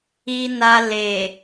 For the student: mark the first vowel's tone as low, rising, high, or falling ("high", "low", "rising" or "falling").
low